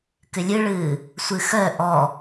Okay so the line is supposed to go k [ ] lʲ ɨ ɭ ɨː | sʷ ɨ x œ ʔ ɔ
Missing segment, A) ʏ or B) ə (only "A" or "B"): A